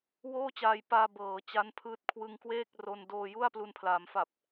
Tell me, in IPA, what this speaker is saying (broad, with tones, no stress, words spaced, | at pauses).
woː˥˩t͡ɕaː˧jpaː˧ bɤː˩˦ t͡ɕa˦˥npʰɯː˦˥t̚ kʰwɯ˧ŋkweː˥˩k̚ ro˧n doː˧ju˥˩a̯ plu˧npʰlaː˩˦mfa˨˩p̚